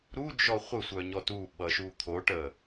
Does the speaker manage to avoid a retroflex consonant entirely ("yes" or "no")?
no